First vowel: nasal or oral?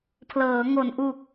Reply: oral